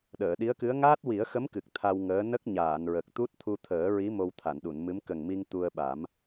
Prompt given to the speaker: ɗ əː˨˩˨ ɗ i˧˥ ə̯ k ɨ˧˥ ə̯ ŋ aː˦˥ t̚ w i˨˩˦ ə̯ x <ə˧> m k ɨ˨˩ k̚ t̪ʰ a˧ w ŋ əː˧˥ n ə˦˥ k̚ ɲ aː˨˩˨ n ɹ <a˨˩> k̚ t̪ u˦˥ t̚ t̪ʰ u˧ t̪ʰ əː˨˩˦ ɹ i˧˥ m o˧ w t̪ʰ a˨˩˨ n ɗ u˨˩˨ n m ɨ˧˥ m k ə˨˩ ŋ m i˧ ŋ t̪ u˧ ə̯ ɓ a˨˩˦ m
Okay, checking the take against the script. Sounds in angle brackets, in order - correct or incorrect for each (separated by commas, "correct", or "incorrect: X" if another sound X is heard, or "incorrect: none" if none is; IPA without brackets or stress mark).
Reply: incorrect: ə˧˥, incorrect: ə˨˩